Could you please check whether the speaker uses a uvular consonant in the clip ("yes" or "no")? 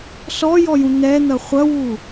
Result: yes